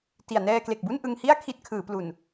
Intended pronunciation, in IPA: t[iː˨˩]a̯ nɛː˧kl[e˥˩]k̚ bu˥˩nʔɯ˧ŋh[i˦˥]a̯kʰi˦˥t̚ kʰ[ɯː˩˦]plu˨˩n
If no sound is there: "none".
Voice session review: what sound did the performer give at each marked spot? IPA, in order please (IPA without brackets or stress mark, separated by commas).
i˨˩, e˨˩, i˥˩, ɯː˩˦